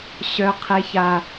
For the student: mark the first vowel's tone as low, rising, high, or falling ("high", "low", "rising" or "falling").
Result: high